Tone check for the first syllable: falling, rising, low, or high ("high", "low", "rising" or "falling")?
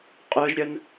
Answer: high